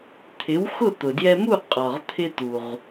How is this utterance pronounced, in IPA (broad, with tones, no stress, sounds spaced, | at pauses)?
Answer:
t̪ʰ ɪ˩˥ w x ʊ˥˩ t̪ ʊ˩ d j ɛ˧ m u˥˩ qʼ ɒ˩ ʁ t̪ʰ ɪ˧ t̪ u˩ ʁ